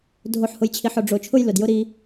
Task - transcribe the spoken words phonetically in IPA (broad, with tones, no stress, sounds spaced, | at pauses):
dʱ o˨ ħ h ʊ˨ j t͡ɕʰ i˨ ħ ʊ˨ ɖ͡ʐ o˨ t͡ʃʰ ʊ˦ j l ʊ˨ d j ʊ˦ ɾ i˦